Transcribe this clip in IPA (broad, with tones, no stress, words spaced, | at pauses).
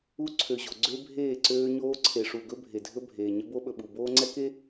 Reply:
u˦ ǀʰø˨ʑo˨ ɡ͡ǀø˦bʱeː˦˨ǀøː˦ ɲoː˦ǀʰe˨ʂu˨ɡɵ˦ bʱe˨dʱɵ˦bʱeː˨ ɲə˦bo˦ɓɵ˨ɓu˨ boː˦ŋ͡ǀɛ˦ke˦